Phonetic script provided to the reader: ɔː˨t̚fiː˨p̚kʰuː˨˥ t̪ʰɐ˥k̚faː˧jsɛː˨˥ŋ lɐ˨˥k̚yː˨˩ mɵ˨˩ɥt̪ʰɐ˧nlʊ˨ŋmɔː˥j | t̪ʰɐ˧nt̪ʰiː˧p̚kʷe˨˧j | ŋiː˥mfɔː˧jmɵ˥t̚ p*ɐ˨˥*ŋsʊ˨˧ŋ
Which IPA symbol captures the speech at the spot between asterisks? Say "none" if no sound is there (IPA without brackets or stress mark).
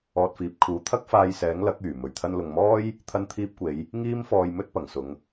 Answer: ɐ˨˩